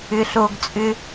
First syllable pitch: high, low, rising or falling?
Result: low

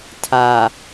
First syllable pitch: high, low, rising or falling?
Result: low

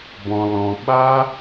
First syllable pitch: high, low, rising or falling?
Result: high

